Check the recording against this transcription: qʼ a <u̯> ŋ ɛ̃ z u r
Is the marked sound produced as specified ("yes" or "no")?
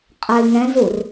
no